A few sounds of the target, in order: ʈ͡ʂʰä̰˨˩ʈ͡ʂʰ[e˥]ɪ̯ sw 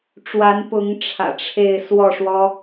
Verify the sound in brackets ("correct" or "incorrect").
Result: incorrect